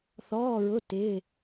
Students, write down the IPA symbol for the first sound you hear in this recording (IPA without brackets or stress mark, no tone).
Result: θ